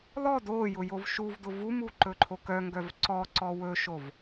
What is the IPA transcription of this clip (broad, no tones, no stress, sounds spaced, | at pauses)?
l ɔ d o j ʊ j o v ʃ u v d ʊ v u m u ǃ ɵ ǃʰ o k œ ŋ ɡ œ v ǀ ɔ ǀ ɔ w ɵ ʃ o v